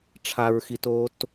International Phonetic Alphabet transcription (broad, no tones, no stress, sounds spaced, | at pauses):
ʈ͡ʂʰ a ɹ x i t oː t